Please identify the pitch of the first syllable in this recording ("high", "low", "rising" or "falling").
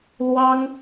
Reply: high